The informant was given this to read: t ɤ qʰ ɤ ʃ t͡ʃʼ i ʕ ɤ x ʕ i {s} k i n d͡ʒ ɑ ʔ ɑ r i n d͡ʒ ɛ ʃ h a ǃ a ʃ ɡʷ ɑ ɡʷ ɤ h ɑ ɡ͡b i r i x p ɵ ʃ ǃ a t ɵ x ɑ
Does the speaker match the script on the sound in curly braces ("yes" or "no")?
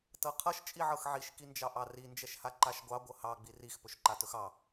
no